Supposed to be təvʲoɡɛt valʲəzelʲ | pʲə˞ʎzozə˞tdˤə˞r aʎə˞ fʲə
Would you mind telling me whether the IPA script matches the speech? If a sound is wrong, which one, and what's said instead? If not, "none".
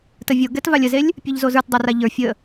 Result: none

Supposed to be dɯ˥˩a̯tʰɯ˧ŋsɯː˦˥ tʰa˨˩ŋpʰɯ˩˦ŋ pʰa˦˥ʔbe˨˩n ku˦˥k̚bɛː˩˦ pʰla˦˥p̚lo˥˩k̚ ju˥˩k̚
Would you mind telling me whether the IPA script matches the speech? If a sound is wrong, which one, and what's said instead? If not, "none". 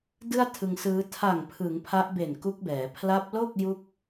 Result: none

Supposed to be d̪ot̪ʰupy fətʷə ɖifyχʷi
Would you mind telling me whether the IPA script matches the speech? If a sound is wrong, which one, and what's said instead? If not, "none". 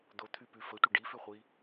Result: u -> y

